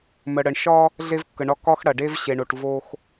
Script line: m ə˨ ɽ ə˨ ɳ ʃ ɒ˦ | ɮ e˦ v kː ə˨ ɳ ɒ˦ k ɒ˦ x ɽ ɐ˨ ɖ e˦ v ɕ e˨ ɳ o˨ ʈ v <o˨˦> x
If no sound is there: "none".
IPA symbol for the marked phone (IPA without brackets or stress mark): o˦